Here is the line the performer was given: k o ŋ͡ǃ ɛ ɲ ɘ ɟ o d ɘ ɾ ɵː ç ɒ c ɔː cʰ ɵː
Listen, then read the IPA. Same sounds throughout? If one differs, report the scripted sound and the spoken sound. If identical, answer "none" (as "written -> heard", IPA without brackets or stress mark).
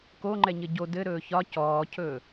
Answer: none